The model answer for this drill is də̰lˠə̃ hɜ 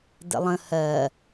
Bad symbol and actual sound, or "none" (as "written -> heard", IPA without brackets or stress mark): none